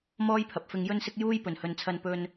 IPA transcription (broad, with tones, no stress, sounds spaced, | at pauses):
m ɔː˥ j pʰ ɐ˨ p̚ f ɪ˧ ŋ j ɵ˥ n s ɪ˥ k̚ j uː˥ j p ɵ˨˩ n h ɵ˨ n t͡sʰ ɐ˧ n p ɵ˧ n